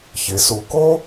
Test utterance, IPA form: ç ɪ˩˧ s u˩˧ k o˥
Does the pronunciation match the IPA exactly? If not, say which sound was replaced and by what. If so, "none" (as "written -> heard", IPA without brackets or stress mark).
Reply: none